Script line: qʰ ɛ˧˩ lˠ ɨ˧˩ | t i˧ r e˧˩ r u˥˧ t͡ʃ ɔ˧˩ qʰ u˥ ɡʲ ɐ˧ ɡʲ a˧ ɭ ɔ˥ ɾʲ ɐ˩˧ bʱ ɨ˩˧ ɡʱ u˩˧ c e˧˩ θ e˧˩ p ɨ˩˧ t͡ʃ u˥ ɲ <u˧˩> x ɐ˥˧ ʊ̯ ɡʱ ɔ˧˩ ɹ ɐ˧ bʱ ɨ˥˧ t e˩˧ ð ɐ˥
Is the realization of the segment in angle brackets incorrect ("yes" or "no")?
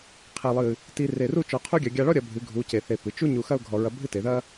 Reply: no